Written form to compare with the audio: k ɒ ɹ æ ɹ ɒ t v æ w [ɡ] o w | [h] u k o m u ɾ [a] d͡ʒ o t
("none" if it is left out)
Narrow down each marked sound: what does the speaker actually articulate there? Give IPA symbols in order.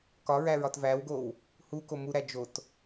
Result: ɡ, h, æ

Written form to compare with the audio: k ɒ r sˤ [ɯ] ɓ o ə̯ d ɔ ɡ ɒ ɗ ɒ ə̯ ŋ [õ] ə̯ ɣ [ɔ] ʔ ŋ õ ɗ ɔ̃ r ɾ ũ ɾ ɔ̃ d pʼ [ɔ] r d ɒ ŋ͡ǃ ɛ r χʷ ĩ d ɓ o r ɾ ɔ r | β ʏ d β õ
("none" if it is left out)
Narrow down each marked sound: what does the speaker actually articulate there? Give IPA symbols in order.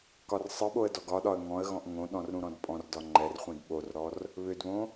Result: ɯ, ɔ̃, ɔ̃, ɔ̃

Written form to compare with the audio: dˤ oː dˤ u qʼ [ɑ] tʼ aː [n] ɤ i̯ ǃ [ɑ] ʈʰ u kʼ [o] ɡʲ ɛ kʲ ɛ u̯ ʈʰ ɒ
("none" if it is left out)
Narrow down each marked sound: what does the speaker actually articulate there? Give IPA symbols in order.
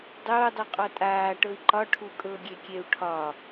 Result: ɔ, ʈ, ɒ, ɤ

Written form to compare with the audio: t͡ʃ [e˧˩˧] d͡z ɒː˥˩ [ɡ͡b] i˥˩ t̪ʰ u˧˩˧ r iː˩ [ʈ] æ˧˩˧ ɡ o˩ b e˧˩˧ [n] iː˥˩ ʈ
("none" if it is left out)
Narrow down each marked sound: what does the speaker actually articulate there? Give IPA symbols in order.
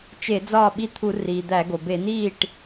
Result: e˧˩˧, ɓ, d̪, n

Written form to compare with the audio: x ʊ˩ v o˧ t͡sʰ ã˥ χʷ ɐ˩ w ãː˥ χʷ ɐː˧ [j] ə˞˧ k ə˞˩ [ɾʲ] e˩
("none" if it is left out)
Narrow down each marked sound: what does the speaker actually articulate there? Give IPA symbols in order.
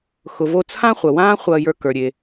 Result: j, ɾʲ

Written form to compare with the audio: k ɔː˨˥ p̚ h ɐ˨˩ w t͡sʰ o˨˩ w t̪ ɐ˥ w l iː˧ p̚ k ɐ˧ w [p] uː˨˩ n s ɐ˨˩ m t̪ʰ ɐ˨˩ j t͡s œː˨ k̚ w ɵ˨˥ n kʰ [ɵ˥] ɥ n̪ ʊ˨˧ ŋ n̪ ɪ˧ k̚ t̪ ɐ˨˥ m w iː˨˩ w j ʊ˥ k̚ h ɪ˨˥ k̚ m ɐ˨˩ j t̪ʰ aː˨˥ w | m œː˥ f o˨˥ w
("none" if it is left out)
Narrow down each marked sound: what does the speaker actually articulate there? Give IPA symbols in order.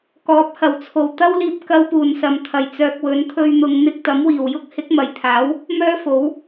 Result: p, ɵ˧

